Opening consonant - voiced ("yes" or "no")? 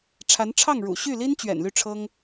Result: no